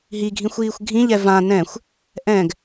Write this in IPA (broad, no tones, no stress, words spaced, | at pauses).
ɦiɡʱĩxʷ iːxʷɡʱĩʎɛ vã nɛ̃xʷ | ʔɛ̃ɡ